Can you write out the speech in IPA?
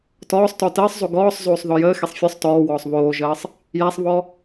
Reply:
tɔːsˤtɔ təːsˤzˤo ɡɔːsˤzoːsˤ ðɔjəːxesˤ fʲɔsˤ tɔːwɔːsˤ βoːʒəːsˤ | jæsˤβɔ

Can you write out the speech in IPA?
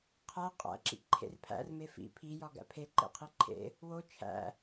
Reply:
qʰæ qʼæ̰ǁḭǃʰḛr pʰæ̰rme fḭ pʰijɒ ɡæ̰pʰe ǃḛqʰiǃʰḛ | wo t͡ʃʰæ̰

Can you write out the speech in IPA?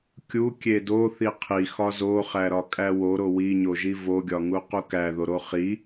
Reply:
kʲu kʲedo θiqʰi xɒzoχæ ɾɒkʼæwoɾo wiɲoʒi voɡʲɒŋu qukæ ðoɾoχi

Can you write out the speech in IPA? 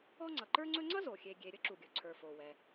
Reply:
ɔ˥ŋ͡ǀʌ˩ǃə˞˥ŋ͡ǀɵ˥ ŋ͡ǀʌ˥zo˩ xʲe˩ɡʲe˩ ɾʲə˥ ǁu˩ɡʲɵ˩ǀʰə˞˩fo˩ wɛ˩

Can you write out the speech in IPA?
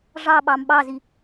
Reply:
ʐɑɓɑm ɓɑzi

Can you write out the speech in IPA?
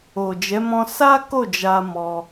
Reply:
o˨d͡ʒɛ˨˦ mɔ̃˧ sa˦ ko˦˨d͡ʒa˧ mɔ˧

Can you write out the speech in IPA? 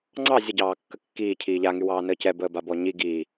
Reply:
ŋ͡ǀɑ zʲəɟɑː kːəkːiː cʰiːʎaŋy wɑːnəːcɛ bəːbabɔɲi ɡi

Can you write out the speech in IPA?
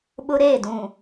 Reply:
ɓʊ˦ɾeː˦˨dũ˨

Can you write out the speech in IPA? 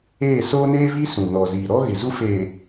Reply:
eː˦˨soː˦neː˦vi˦ sũ˨nɔ˨ziː˨ɾɔ˦ ɣɪ˨zu˦feː˨

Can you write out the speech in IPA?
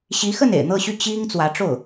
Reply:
ɕi˧˥xə˥˩n ḛ˨˩ɪ̯n̪ɤ˥˧ɕy˥˩ t͡ɕi˥ŋ t͡swä˧˥ʈ͡ʂo˥˩ʊ̯

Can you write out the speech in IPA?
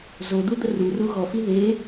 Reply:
zod̪ud̪ə ruru ɣɔfi ðe

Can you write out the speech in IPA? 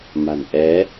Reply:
ma̤˨˩nʔɛ˨˦

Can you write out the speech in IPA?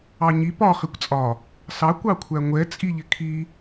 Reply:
ɑɲi pɒ χikʷt͡sʼɒ | sɑ kʷɑkʷʰæŋʷɛ t͡sʼiʎɪkʰi

